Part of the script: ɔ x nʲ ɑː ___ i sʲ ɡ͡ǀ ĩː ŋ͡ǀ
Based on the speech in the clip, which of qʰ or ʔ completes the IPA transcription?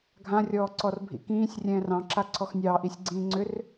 ʔ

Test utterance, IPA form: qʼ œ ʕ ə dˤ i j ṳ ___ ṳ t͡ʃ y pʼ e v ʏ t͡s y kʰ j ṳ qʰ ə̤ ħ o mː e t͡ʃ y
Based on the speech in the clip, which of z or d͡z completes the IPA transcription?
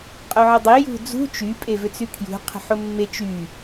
d͡z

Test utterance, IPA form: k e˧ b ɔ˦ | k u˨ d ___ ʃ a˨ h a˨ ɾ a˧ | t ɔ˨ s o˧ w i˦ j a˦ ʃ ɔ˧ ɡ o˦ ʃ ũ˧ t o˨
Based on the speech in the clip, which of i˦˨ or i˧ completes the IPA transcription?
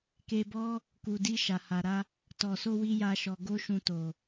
i˧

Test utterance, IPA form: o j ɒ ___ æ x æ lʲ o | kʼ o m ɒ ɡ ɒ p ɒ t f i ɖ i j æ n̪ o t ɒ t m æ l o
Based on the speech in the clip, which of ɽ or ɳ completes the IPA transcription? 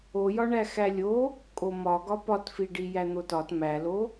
ɳ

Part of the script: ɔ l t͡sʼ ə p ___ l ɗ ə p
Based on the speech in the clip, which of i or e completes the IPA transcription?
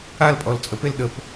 e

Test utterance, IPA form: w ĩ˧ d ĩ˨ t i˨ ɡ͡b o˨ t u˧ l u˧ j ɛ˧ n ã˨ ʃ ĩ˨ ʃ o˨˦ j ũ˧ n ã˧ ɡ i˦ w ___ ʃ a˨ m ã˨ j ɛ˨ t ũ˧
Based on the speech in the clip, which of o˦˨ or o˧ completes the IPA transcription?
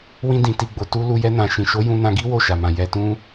o˦˨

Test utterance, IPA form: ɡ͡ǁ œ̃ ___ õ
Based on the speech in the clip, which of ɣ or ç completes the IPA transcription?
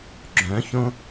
ç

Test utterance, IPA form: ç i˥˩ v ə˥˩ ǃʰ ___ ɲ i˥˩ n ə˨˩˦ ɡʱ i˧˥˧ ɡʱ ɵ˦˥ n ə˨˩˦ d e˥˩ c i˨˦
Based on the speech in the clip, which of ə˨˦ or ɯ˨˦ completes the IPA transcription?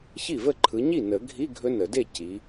ɯ˨˦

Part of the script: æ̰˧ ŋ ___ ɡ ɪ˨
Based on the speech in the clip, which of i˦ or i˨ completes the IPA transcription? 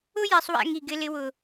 i˨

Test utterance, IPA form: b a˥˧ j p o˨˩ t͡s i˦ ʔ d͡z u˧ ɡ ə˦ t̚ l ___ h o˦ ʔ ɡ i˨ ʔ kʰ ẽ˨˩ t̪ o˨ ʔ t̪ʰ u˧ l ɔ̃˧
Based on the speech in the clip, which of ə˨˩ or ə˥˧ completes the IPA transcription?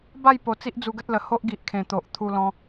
ə˨˩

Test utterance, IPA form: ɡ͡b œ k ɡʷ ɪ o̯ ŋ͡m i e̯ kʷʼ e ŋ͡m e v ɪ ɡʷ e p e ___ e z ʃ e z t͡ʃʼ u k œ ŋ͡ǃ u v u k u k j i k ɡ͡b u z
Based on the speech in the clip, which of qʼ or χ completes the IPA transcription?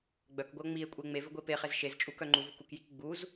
χ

